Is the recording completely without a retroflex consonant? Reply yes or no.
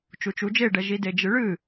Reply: no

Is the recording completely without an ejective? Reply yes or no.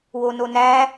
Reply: yes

